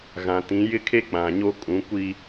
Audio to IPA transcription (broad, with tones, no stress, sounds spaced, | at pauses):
ɣ ã˨ t ĩ˨˦ j ɪ˦ kʰ e˦ k͡p ã˨ ɲ o˦ kʼ ũ˨˦ kʷ i˦